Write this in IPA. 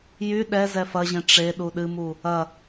jy ɗɛ zɛfɐʑẽ ʈ͡ʂe ɗuɗɨmu | ɐ

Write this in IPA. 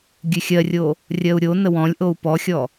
ɡʲʉxʲɜrʲo | rʲɜu̯ɾʲonə wɔ̃lʲʔou̯ pɔxʲɔ

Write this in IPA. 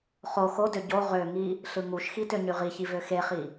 χo xodø ɟo ʁøŋi | ɬɯŋuʃxi tøɲyʁiçi vøxeχi

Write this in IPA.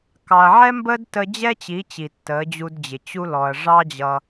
kɑ˨ɐ̯ʕɛ˦mbəː˦dtə˧ d͡ʑɛ˦t͡ɕi˨˦t͡ɕi˨ tːəː˨˦d͡ʑu˧dd͡ʑɪ˨ t͡ɕu˧lɔ˨ɐ̯ ʐɑ˦d͡ʑʌ˧

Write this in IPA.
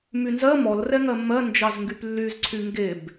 mynzɜ mɔlrɛŋɜ mːɜnd͡ʒɑzŋɡyp lːyzǀʰy ŋɡeb

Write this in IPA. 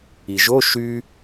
iʒo ʃy

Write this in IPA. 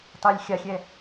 tˤɛlʲ xʲaxʲɛ

